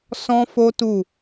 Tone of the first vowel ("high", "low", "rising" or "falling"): high